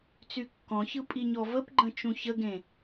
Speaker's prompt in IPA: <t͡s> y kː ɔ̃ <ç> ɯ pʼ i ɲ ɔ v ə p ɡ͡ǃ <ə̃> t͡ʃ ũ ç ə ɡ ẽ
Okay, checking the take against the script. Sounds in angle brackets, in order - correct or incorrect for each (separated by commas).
correct, correct, correct